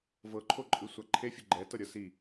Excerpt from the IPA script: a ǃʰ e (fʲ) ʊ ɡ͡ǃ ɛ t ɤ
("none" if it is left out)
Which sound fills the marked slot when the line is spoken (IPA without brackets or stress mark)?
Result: fʲ